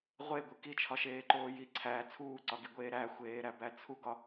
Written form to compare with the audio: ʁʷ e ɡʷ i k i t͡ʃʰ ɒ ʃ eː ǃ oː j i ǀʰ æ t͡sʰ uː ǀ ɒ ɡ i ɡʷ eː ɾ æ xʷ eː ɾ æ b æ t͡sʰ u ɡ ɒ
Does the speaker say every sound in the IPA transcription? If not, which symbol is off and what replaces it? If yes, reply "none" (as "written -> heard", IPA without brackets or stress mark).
none